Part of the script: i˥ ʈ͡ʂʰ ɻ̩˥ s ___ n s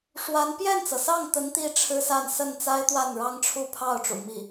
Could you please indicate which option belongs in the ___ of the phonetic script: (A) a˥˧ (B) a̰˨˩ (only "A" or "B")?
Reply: A